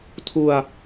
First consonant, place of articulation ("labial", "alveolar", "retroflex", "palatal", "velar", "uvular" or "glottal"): alveolar